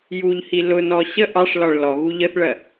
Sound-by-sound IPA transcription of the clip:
j u ʎ h i l ʊ n ɔ ɕ ə ʔ ɑ ʂ l ɒ ɭ l ɔ ɣ u ʎ ə θ ɭ ɜ

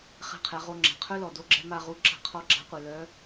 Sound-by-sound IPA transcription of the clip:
χ ɛ̤˧ qʰ ɛ˩˧ ʁ o˧ ŋ͡ǁ a̤˩ qʰ œ˥ l ɔ˩ d o˥ ɡ͡ǁ ɛ̤˥ m a˧ ʁ u˧˥ ǁ a̤˧ qʰ ɔ˧˥ ɡ͡ǁ a̤˧˥ qʷ ɛ˩ l œ˧˥

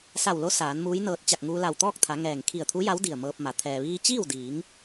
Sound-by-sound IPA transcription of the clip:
s a˧˩ w l o˧˥ s aː˩˧ n m uː˧˥ j n ɤː˧ t̚ t͡ɕ a˧˩ k̚ ŋ uː˧ l a˧˩ w t̪ ɔː˥˨ k̚ t̪ʰ a˩˧ ŋ ɛː˧˩ ŋ kʰ i˧˩ ə̯ t̪ʰ u˧˥ j a˧˥ w d i˧˩ ə̯ m ɤː˧ p̚ m a˩˧ t̪ʰ ɛː˩ ʋ iː˧ t͡ɕ iː˥˨ w d iː˩˧ ŋ

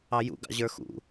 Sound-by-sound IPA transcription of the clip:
ɑ j ṵ ɡ ɑ̰ ʑ ə˞ x ṵ

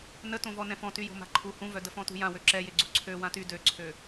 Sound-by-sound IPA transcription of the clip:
n ə t õ v ɔ n ɛ̃ f ɔ̃ t y j o̤ m a̤ ǃʰ u h ũ v œ d ə f ɔ̃ t ṳ j ã w ø ǁ ɛ j e ɡ͡ǀ u ǀʰ ø w ã t y d ø ǀʰ ø

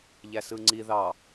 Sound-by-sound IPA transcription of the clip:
ʎ æ s ɯ ŋ͡ǀ i ð ɑ

